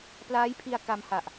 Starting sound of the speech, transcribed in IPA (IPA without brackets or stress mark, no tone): p